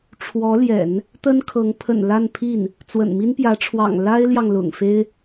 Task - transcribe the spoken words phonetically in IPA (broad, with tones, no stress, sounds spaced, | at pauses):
ʈ͡ʂʰ w ɔ˧˥ l j ɛ̰˨˩˦ n | t̪ ə˥ n kʰ ɤ˧˥ ŋ pʰ ə̰˨˩ n l a˥˧ n pʰ i˥˩ n | t͡s w ə̰˨˩ n m i˥ n p j ä˧˥ ʈ͡ʂʰ w ɑ̰˨˩ ŋ l a˥ ɪ̯ l j ɑ˨ ŋ l ʊ̰˨˩ ŋ f e˥ ɪ̯